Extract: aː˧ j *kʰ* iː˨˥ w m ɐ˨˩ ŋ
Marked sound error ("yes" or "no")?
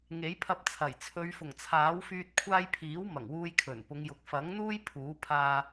yes